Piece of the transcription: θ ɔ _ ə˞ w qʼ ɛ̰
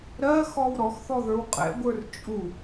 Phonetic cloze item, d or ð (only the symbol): ð